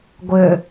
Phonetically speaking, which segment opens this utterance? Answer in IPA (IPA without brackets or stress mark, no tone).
ɡʷ